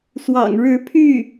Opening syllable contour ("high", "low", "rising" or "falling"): low